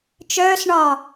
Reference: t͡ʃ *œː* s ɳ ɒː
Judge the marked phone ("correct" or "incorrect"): correct